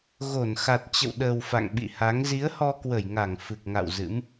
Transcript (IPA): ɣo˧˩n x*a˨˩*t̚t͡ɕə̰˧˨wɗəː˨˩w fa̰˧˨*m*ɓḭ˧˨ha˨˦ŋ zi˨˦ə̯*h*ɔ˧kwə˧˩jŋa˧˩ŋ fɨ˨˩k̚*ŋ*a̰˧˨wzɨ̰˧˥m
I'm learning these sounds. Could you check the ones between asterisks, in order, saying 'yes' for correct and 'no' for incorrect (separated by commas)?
yes, no, yes, yes